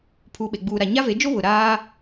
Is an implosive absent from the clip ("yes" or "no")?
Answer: no